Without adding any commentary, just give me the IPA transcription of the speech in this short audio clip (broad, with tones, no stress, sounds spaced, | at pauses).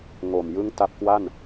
ŋ o˨˩ m j ɯ˥˩ ŋ t a˦˥ p̚ k w a˥˩ n